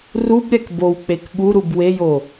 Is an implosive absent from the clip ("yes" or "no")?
no